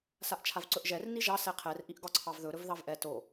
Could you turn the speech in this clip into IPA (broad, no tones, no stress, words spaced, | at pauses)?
saʔt͡ʃʰavǀɵʔʒɛr niʒɑ sɛqʰɛr ʔiʔɡɒǀʰɑvðɵ ɾɵvðɑvʔɛ to